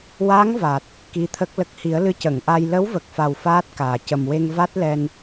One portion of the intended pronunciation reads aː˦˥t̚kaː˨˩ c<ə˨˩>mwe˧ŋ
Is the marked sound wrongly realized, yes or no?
no